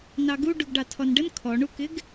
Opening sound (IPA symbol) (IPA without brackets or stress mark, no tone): n